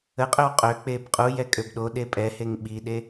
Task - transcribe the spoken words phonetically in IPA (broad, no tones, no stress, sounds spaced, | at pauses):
ə qʼ ø w qʼ ø k͡p e b qʼ u j ɛ kʼ ø b ɗ o ɗ e pʼ ɛ h e ŋ ɓ i ɗ e